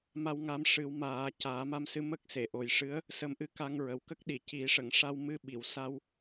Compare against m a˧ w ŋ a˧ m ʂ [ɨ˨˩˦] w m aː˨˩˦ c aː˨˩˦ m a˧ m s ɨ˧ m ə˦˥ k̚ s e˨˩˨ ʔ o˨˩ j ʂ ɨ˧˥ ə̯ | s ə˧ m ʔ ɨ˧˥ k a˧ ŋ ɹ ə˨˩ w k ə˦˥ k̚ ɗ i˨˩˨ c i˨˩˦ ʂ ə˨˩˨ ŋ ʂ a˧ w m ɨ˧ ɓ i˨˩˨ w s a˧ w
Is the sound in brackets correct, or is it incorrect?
correct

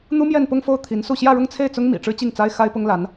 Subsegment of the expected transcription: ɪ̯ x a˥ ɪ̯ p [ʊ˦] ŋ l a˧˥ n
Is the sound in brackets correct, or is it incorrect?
incorrect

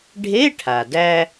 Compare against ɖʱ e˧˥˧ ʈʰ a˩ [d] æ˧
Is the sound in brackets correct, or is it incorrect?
correct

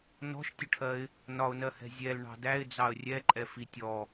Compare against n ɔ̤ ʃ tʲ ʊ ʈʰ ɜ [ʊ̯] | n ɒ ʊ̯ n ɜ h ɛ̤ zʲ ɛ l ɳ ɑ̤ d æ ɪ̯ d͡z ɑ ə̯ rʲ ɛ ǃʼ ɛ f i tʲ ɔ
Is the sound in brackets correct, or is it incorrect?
incorrect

